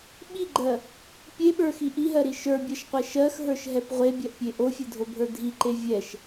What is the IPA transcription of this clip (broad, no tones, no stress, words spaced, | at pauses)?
ɓiɡ͡ǃɜ | pʲeɓə˞xi ʔiɦɜɾi ʃə˞bʲɜʃqʷɛ ʃɜxɦə˞ʃɦɛp ʁʷebʲɜʔpʲe ʔofʲedʱobʱə˞ dʱiǃe vʲɛʃ